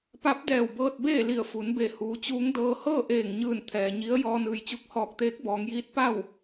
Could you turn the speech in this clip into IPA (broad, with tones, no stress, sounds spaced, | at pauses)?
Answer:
p a˧˥ p̚ d ɛː˧˩ w b ɤː˧ t̚ b eː˥˨ l i˧˩ ə̯ f u˩˧ n b e˧˩ h uː˩˧ t͡ɕ uː˧˥ ŋ d ɤː˧ h ɤː˥˨ ʔ eː˧˩ ŋ ɲ ɯː˧˩ n t̪ʰ ɛː˩ ɲ i˧˥ ə̯ j ɔː˧ n ɯː˩ j t͡ɕ u˧ k̚ h ɔː˧˩ k̚ t̪ eː˧˥ k̚ b ɔː˩˧ ŋ j iː˧˥ t̚ p a˥˨ w